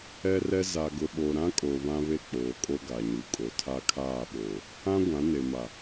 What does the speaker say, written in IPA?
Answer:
ɛ˦ r ɛ˦ z a˨ ɡ ʊ˨ ɓ o˨ ɾ ã˦ kʼ o˨ β ã˦ β e˦˨ k͡p oː˨ kʼ o˦ ɡ a˨ ɲ u˨ kʼ o˨ tʰ a˦ kʰ aː˦˨ ɓ oː˨ | ã˦ ɡʷ ã˨˦ n e˨ m a˨

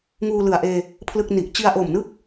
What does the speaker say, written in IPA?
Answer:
ŋ uː˧ l ɯ˨˩ a̯ ʔ eː˧ | pʰ l ɯ˥˩ k̚ n i˨˩ ʔ t͡ɕ i˧ a̯ ʔ o˨˩ m n ɯ˥˩ k̚

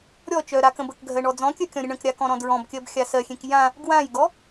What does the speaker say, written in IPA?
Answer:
ɾʲ ɔ t͡ʃ œ ɾ a k ə̃ b ə k ɡʱ ɜ ɳ ɔ d͡z ɔ̃ kʲ œ kʲ ɔ̃ ɾʲ ə ɳ ə̃ k ɾʲ a k ɔ̃ ɾ ɔ̃ d ɹ ɔ̃ b kʲ ɜ b xʲ a s ɜ xʲ ẽ k j ã | ɡ w ã j ɡ ɔ

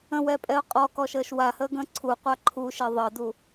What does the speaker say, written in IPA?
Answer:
ə̃ w ɛ pʼ ɛ ʊ̯ qʼ ɔ k ɔ ʃ əː ʃ w a h əː ɡ ə̃ː ǀʰ u qʷ a ǃʰ u ʃ e ðˤ əː d u

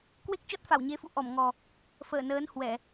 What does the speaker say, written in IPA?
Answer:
k w e˦˥ k̚ t͡ɕ ɔ˦˥ t̚ f a˧˩ w ɲ e˨˦ f ṵ˧˨ ʔ ɔ˧˩ m ŋ ɔ˨˩ | f əː˧˩ n əː˨˦ n h w ɛ˧˩˨

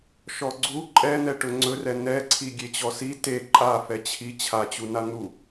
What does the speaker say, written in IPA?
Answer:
ʃ ɔ ɡ͡ǀ u ǃʼ ɛ n̪ ɛ ʈ ɵ ŋ͡ǀ ɵ r ɛ n ɛ ǀʰ i ɡʲ e t͡ɕ ɔ s i t e ǃʼ a f ɛ t͡ɕʰ i t͡ɕʰ a t͡ɕ u n a n̪ u

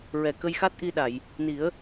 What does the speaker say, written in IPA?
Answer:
ɹ ɛ˨˩ k ə˧ j x a˦˥ t̚ ʔ i˧ ɗ a˨˩˨ j | n i˨˩˦ ə̯

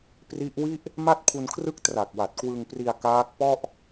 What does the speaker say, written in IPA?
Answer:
p r i˦˥ ʔ w i˥˩ ʔ | m a˥˩ t̚ pʰ u˧ n kʰ r ɯ˥˩ k̚ t r a˨˩ k̚ w a˨˩ t̚ k w ɯ˧ ŋ p r i˧ a̯ k aː˦˥ k̚ p ɔ˥˩ ʔ

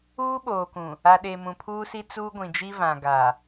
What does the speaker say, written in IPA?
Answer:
uː˦ ɓ oː˨ k ũ˨ | a˨ ɗ e˨ m ũ˨ pʰ uː˦ s i˦ t͡s uː˦ ɡʷ ĩ˨ d͡ʒ i˦ v ã˨ ɡ a˨

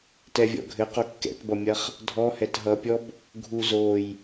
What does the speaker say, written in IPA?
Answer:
t ɛ vʲ ɔ̰ ɡʱ ɘ q o kː ɛ̰ t b ʌ mʲ ɐ χ | dʱ ɔ h ɛ t ɦ ʌ pʲ ɔ b | ɡʱ u z o j

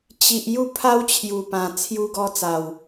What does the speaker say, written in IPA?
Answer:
t͡ɕ i˨ ʔ j u˥˧ pʰ a˦ w t͡ɕʰ j u˨˩ p ã˨˩ t͡sʰ j u˧ ɡ ɔ˧ t͡s a˨˩ w

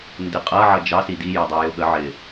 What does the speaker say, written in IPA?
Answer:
n d ɪ qʼ ʌ ʕ ʌ d͡ʒ ɑ s i d i j ʌ dˤ æ j ʊ ɠ ə ʕ ɪ

